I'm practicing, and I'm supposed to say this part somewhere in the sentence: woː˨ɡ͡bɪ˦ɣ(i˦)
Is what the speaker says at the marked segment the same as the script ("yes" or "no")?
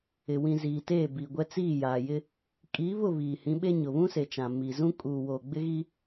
yes